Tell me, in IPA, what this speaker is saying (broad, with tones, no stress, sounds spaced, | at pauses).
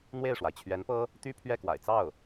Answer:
n̪ w e˥˩ ɪ̯ ʂ w a˩ ɪ̯ t͡ɕʰ ɥ ɛ˧˥ n p ɤ˥ | t̪ y˥ pʰ ɥ ɛ˥˩ k w a̰˨˩ ɪ̯ t͡s ɑ˥˩ ʊ̯